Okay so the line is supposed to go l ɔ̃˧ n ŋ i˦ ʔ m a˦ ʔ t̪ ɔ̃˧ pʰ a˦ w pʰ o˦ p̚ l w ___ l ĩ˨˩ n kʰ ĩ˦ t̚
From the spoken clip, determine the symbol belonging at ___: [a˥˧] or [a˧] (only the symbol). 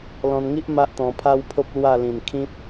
a˥˧